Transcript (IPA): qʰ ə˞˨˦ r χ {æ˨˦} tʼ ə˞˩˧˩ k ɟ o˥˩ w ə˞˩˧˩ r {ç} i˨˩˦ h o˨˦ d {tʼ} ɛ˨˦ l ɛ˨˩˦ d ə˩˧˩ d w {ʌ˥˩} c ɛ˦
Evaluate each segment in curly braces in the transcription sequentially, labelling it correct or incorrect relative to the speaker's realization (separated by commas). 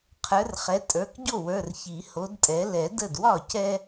incorrect, correct, correct, incorrect